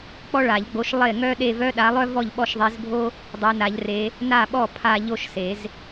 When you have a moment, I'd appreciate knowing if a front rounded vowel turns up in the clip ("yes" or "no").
yes